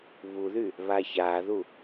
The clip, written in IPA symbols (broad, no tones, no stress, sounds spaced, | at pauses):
β u ð y | β a ç a ð u